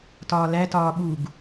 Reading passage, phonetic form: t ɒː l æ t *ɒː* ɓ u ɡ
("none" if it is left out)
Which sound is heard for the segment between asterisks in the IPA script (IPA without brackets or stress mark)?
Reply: ɒː